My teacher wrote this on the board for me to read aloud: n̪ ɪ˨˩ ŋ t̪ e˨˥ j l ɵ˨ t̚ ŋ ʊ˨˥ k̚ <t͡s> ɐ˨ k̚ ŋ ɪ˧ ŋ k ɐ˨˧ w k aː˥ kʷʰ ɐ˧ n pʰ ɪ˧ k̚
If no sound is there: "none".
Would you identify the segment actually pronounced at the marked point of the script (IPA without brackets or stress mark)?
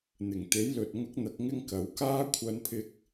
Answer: n̪